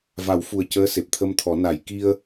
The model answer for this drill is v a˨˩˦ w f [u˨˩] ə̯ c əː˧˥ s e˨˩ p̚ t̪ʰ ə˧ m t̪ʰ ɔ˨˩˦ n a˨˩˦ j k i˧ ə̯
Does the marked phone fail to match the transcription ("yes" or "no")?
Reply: no